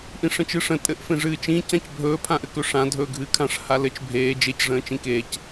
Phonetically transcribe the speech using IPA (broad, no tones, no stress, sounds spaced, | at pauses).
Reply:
ʔ ĩ ʂ ə̃ t͡ʃ ɨː ʂ ə̃ tʼ ɘ ʔ f ẽ ʐ ɨː t͡ʃ ĩ c ã c bʱ ɵː pʰ ã ʔ ɘ k ɵ ʂ ã dʱ ɵː ɡʱ ɨː kʰ ã ʂ h a l ɘ t͡ʃ bʱ eː d͡ʒ e c ʐ ə̃ː t͡ʃ ĩ k eː c